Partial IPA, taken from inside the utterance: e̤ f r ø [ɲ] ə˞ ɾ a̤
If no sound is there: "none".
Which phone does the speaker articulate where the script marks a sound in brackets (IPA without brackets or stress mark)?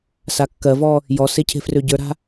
ɟ